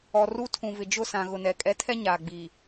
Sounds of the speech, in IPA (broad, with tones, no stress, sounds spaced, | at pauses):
ɔ˨ r u˦ tʰ ũ˨ v ɪ˨ d͡ʒ ʊ˦˨ s ã˨ ɣ ʊ˨ n ɛ˨ kʼ ɛ˦ tʰ ɛ˦ ɲ aː˨ ɡ͡b i˨